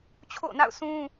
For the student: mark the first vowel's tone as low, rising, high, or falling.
falling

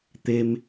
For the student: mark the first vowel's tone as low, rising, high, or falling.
high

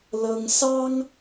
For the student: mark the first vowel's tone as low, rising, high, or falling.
high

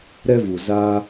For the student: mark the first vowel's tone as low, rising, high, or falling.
high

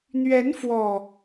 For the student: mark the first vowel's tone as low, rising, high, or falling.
rising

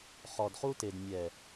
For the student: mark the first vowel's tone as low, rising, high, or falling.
low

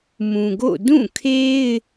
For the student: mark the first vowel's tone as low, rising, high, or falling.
low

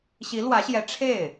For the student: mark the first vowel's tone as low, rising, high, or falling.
rising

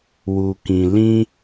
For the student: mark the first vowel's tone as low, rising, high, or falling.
low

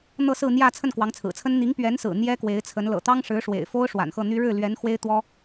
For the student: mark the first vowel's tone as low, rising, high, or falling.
falling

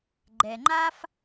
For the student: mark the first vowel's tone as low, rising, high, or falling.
low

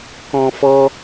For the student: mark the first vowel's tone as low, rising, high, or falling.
high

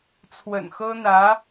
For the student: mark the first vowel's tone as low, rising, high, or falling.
low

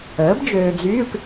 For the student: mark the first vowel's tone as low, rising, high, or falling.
rising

